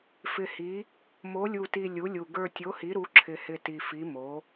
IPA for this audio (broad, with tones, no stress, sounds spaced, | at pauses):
f ɪ˨˩ h i˩˧ | m o˩˧ lʲ u˨˩ t i˨˩ lʲ u˩˧ lʲ u˨˩ ɡ ə˞˨˩ tʲ o˩˧ h i˩˧ ɾ u˩˧ ǁʰ ɪ˨˩ h ɪ˨˩ t i˨˩ f i˩˧ m o˩˧